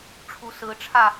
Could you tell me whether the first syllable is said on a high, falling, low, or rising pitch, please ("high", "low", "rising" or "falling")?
rising